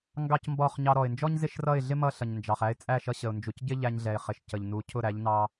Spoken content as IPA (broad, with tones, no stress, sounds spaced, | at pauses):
ŋ ɡ ɑ˦ c m b ɔ˦˨ χ ɲ ɑ˧ ɾ ɔ˨ ɪ̯ n d͡ʒ ɔ˦ ɲ z ɪ˦ ʃ r ʌ˦˨ ɪ̯ ɮ ɪ˦ m ʌ˦ ɬ ʌ˨ ɲ n d͡ʒ ɑ˨ χ æ˧ ɪ̯ t͡sʼ æ˦˨ ʃ ʌ˧ ɕ ə˨ ʊ̯ n d͡ʒ u˨ c ɟ ɪ˦ ʎ æ˧ ɲ ɮ ɛ˨ ɪ̯ χ ɪ˨ ʃ c ə˨ ʎ n u˨˦ cʰ ʊ˦˨ ɾ æ˨˦ ʎ n ɑ˧